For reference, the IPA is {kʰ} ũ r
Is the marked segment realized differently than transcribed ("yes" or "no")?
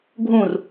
yes